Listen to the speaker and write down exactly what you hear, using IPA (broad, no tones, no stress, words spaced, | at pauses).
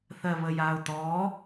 θɜβəjao̯t̪ɔ